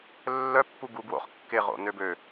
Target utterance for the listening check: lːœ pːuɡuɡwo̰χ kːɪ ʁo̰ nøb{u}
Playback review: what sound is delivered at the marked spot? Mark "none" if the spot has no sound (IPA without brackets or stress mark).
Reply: ø